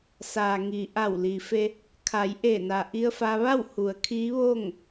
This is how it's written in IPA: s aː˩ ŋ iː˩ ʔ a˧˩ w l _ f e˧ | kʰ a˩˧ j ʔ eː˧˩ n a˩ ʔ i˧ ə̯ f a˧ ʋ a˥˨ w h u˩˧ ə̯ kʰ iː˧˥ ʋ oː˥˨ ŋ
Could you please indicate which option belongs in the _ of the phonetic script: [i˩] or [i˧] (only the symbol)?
i˩